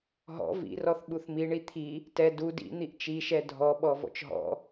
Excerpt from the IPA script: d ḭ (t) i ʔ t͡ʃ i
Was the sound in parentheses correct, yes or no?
no